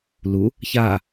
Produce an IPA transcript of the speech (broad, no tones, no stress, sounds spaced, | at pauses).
l u | ç a